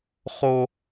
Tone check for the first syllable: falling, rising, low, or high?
high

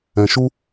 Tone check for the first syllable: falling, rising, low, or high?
low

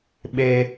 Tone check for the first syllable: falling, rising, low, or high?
high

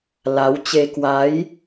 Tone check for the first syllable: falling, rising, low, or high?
rising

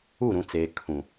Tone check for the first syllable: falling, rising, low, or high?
falling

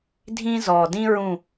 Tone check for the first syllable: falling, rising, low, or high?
high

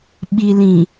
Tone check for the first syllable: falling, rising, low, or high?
low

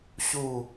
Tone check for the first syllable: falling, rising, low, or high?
falling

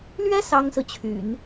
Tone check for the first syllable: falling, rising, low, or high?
high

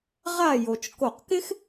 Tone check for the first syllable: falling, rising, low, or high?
falling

